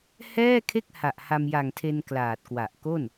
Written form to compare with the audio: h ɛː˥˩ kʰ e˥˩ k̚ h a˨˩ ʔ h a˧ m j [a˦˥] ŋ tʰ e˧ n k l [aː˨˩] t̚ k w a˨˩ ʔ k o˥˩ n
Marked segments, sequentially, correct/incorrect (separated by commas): incorrect, correct